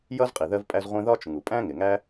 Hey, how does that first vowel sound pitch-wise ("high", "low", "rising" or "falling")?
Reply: high